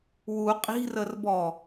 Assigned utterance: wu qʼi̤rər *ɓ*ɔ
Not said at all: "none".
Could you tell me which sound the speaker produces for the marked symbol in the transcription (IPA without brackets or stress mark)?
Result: b